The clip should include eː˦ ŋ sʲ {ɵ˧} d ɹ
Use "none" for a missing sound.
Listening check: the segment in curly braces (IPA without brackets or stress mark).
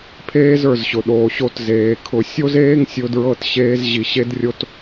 ʊ˧